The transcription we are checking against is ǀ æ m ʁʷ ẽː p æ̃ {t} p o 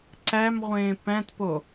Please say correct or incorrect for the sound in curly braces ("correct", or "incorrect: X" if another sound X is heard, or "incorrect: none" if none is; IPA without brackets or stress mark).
correct